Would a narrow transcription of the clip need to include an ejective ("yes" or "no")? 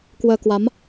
no